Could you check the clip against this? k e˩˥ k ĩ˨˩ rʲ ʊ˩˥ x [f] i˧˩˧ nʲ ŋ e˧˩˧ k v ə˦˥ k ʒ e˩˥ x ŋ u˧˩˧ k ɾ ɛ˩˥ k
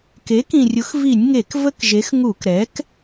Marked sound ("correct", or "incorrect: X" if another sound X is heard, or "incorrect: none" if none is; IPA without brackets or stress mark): incorrect: v